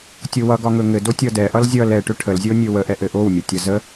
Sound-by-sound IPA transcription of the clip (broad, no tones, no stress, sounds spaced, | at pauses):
tʲ o w ʌ ɡ ɒ ŋ ɵ ŋ ɘ d o tʲ ʌ d ɛ ʔ ʌ l zʲ ʌ l ɛ ʈ ɵ ʈʰ ə l zʲ o nʲ ɵ w ə ʔ ɛ ʔ ɘ ʔ o w mʲ ʌ tʲ ʌ z ə